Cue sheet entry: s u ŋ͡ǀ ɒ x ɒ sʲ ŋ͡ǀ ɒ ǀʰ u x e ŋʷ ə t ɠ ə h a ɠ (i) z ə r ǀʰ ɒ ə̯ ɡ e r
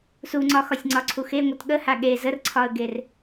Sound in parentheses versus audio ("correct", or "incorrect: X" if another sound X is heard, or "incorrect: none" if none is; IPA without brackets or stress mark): incorrect: e